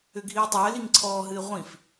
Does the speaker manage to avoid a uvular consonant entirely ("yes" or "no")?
no